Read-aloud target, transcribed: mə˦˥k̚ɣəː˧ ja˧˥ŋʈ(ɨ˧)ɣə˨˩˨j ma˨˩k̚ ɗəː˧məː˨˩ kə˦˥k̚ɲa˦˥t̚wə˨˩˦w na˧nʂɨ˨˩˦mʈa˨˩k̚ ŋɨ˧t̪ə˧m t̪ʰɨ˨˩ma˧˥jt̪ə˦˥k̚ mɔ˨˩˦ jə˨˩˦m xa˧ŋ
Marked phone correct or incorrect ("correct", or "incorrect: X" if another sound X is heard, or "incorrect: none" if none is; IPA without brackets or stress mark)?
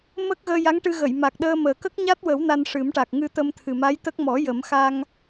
correct